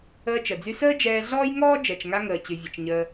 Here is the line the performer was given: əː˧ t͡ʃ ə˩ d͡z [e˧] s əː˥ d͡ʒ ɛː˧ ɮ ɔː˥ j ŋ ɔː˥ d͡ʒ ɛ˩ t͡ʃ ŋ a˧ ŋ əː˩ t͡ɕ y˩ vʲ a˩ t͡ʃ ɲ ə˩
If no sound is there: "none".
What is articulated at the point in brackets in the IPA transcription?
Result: y˧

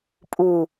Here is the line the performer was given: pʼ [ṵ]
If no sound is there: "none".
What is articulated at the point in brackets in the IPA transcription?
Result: u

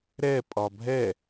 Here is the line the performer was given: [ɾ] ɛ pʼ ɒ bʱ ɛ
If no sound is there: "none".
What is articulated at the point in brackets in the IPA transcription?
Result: ɾ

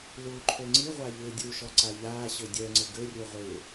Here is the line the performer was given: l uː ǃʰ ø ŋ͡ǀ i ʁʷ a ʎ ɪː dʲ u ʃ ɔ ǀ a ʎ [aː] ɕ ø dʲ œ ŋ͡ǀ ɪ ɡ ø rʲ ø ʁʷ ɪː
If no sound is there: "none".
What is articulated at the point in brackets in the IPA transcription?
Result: aː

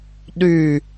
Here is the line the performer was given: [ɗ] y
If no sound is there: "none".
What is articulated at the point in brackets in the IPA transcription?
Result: ɗ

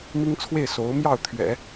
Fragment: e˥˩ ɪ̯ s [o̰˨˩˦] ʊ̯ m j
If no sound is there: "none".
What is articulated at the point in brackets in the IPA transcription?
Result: o˧˥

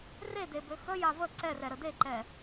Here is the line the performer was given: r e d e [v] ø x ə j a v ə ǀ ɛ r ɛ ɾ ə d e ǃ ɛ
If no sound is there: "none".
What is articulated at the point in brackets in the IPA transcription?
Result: b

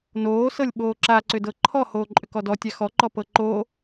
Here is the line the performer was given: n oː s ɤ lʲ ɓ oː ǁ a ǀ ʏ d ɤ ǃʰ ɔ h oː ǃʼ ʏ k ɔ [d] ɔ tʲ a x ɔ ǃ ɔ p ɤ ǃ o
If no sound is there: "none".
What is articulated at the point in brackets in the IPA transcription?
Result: d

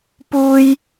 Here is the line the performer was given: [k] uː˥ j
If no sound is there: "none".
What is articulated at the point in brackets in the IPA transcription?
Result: p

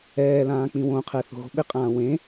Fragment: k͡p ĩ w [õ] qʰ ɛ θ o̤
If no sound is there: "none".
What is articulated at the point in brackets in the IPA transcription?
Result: õ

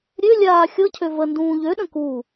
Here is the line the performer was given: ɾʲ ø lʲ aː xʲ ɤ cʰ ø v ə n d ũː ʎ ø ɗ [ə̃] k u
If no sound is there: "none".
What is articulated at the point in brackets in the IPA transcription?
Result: ə̃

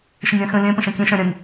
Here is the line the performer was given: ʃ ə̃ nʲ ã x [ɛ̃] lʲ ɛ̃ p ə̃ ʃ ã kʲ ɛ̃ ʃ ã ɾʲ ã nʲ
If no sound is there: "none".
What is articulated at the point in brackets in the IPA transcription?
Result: ə̃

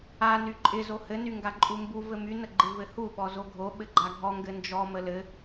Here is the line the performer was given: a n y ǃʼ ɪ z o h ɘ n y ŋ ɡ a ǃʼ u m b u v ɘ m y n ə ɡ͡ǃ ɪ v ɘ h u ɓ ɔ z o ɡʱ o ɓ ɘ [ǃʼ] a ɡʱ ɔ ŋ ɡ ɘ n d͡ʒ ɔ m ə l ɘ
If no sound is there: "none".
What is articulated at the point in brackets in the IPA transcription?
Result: ɡ͡ǃ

